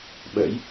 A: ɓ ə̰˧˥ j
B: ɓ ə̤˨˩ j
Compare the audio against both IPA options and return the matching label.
A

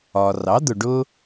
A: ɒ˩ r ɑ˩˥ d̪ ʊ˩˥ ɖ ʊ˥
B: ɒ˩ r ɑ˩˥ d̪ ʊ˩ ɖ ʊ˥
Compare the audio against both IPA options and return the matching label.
B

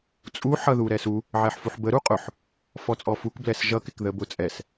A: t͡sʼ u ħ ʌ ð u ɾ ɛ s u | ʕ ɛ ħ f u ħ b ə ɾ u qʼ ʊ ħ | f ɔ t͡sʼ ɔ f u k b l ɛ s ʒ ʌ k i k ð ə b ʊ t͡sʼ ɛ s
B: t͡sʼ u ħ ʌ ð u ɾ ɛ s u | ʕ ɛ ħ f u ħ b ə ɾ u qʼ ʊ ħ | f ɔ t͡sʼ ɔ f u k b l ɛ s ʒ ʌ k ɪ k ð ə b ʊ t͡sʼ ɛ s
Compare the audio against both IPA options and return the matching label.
B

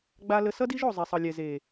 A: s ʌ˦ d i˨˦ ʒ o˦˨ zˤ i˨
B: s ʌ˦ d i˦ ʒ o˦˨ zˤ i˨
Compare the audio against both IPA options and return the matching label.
B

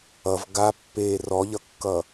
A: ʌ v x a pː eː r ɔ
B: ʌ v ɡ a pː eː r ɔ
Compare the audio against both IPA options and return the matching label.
B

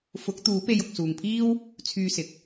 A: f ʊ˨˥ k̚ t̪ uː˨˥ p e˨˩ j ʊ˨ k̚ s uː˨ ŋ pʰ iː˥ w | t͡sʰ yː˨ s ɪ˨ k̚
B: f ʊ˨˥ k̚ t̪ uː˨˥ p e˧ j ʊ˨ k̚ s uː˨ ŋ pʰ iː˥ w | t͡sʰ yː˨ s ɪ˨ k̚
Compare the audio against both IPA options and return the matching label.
B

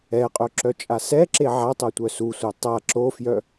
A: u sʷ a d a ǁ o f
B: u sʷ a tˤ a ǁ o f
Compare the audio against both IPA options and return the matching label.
B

